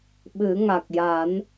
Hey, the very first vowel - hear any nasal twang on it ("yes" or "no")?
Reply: no